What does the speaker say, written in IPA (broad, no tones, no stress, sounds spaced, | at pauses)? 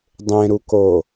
dˤ ẽ ɾ u k o